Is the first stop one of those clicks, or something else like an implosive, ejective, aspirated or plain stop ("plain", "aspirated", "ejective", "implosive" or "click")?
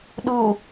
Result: implosive